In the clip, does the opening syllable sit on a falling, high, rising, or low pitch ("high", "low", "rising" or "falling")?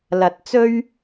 low